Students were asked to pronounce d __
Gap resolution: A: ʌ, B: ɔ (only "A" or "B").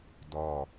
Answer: B